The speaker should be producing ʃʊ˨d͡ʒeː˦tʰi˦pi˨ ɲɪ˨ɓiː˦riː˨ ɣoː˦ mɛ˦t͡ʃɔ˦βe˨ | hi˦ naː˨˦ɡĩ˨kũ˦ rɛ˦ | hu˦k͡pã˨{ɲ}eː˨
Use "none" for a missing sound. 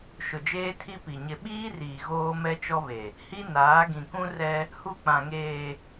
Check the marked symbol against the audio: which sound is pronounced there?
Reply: ŋ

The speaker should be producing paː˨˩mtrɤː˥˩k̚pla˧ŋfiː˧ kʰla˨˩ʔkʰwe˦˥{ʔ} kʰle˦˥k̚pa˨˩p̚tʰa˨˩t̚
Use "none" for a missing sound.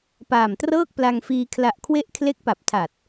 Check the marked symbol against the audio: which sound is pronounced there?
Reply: ʔ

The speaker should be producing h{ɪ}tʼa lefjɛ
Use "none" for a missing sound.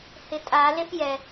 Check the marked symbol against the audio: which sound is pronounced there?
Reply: ɪ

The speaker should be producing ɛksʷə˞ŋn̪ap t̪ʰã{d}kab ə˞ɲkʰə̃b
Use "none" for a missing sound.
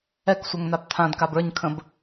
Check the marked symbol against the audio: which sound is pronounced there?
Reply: d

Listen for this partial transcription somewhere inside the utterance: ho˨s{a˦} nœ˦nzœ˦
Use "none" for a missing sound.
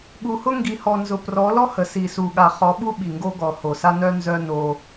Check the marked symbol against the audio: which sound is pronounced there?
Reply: a˦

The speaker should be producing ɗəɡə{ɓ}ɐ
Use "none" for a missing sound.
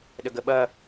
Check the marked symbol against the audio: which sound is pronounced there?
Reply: ɓ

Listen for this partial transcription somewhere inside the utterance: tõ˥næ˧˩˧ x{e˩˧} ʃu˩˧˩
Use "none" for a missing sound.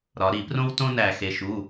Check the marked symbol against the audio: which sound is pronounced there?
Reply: e˩˧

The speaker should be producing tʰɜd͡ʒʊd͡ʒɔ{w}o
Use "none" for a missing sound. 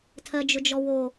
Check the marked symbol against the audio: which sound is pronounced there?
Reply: w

